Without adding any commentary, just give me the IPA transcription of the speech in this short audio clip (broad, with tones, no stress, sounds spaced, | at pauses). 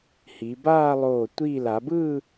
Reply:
h i˩˧ b aː˥˧ lˠ oː˧˩ tʷ iː˧˩ l a˩˧ b ɯː˥˧